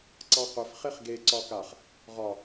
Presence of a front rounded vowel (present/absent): present